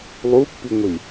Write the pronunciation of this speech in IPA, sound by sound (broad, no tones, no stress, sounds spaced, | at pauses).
lˠ u pː i ŋʷ i